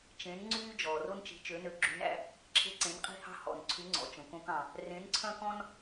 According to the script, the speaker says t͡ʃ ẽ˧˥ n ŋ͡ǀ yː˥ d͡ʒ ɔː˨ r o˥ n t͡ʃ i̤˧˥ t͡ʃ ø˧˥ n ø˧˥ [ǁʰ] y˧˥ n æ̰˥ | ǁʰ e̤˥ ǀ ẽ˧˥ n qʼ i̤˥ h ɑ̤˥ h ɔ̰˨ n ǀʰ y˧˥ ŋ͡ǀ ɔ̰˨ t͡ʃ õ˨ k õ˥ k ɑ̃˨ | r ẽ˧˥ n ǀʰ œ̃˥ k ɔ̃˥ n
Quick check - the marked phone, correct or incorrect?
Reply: incorrect